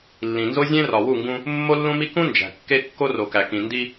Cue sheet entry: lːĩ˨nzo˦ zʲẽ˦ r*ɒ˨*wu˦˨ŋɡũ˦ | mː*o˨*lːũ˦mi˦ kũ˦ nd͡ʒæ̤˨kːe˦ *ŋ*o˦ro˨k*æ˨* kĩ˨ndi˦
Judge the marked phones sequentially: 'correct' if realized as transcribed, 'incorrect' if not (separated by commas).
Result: correct, incorrect, incorrect, correct